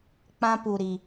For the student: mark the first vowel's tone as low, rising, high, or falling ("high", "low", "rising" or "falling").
high